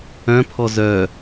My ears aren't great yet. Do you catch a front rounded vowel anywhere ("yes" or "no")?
yes